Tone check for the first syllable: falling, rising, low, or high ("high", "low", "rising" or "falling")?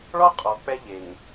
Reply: high